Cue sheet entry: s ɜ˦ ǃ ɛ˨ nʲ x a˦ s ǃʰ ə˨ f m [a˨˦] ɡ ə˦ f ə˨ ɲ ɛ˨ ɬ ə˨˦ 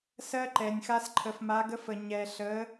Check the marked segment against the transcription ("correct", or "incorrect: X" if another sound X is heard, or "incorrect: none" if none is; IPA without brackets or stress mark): correct